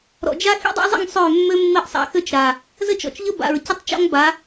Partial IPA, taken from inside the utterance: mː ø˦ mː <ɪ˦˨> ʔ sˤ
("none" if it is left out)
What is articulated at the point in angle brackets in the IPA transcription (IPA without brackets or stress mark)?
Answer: ɪ˦˨